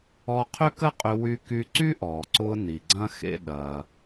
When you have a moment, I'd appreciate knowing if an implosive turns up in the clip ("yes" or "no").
yes